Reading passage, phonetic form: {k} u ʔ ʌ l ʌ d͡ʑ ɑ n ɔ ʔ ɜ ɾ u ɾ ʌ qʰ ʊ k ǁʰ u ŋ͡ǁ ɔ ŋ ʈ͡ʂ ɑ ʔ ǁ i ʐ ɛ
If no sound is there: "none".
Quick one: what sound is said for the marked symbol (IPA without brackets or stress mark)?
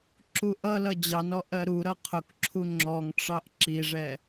ǁ